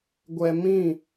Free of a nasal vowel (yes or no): no